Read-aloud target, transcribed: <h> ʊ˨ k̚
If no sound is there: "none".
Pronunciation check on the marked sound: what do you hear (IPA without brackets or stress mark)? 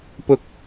p